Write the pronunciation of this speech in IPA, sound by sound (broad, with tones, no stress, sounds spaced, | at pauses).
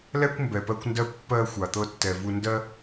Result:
l ɛ˦ kʷ m b ɛ˨ p ɜ˧ kʷ n d ɜ˧ kʷ pː ɜ˧ xʷ a˨ t̪ ɤ˧ tː ɛ˨ v u˧ n d ɜ˦